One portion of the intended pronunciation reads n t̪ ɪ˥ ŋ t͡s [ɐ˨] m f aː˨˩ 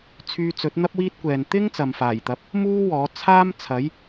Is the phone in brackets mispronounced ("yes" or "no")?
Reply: no